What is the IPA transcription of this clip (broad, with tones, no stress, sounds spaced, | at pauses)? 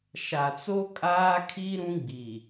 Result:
ʃ a˨ t͡s o˦ kʼ aː˦ kʰ i˦ ɾ ũ˦ ɡ͡b i˨